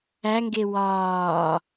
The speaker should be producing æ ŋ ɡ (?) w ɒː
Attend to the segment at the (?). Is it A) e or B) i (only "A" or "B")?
A